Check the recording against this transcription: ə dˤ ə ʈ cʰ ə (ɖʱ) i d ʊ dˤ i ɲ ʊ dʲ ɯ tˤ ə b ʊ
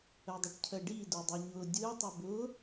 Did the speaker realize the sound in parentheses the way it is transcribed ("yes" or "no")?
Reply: no